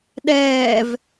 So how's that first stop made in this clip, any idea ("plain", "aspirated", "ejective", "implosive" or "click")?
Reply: implosive